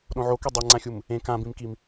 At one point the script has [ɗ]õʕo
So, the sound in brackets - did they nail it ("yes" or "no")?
yes